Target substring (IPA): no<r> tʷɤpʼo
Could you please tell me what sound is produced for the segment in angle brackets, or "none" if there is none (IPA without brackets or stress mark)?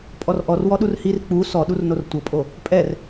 r